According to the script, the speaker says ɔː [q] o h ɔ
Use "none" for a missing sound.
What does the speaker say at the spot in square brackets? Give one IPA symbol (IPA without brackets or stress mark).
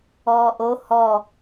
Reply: ʔ